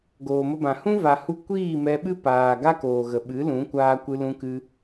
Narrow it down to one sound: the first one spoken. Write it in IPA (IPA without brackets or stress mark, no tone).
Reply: ɡ